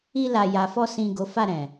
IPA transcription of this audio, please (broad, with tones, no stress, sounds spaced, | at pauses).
i˧ l a˨ j a˨ f ɔ˧ s ĩ˨ ɡ o˨˦ f a˦˨ ɾ ɛ̃˨